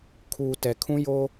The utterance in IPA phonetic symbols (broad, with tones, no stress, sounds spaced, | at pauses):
kʰ uː˨ t ɛ˨ kʰ ũ˦ j o˦